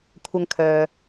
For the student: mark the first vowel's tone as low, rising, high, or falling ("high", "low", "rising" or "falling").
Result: high